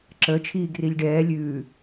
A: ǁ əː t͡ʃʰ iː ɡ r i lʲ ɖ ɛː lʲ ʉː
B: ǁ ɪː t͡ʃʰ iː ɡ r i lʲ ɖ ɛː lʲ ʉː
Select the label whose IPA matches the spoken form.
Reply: A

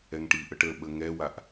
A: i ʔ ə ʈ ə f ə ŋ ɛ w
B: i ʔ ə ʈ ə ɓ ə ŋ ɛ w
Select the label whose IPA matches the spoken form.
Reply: B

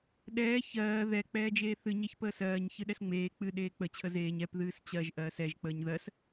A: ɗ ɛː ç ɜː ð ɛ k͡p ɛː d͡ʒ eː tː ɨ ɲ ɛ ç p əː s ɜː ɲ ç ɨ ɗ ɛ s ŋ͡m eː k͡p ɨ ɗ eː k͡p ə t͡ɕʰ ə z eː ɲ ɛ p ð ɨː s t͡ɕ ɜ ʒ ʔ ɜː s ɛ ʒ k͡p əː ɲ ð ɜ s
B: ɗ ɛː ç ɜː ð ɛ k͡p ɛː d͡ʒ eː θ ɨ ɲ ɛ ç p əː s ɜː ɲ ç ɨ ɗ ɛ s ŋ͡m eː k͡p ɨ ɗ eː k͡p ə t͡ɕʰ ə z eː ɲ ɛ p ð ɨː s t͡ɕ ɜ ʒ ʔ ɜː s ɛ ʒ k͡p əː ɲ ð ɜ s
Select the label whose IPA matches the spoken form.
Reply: B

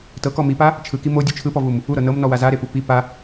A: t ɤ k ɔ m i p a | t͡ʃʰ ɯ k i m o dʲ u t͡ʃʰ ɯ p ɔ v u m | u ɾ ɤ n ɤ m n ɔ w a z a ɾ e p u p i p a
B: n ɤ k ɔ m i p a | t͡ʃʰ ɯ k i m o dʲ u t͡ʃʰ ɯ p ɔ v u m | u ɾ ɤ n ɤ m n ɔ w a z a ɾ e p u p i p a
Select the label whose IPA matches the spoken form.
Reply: A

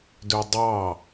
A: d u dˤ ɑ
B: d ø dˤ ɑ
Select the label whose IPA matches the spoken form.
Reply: B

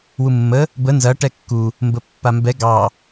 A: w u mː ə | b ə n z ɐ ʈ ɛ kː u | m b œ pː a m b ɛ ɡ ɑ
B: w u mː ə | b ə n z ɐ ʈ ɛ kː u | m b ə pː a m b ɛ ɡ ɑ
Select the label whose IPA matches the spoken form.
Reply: B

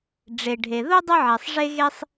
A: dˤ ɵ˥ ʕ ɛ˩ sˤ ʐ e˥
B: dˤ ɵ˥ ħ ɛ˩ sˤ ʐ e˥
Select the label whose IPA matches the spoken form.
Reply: A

